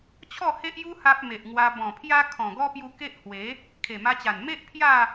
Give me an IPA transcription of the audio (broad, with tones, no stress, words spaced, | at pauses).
t͡ɕʰɔ˥˧he˦ʔju˦ ha˦p̚me˨ʔŋwa˧ bɔ̃˨˩pʰja˦ kʰɔ̃˨˩ɡɔ˦pju˧ ke˦ʔhwe˨˦ | kʰe˨˩ma˧t͡ɕa˨˩n me˦ʔ pʰja˥˧